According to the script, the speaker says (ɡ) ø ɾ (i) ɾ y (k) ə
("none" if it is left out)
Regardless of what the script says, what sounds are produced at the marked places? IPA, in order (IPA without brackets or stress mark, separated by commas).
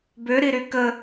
b, i, k